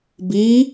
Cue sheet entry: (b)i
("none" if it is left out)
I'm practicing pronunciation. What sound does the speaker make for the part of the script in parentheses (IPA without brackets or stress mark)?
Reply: b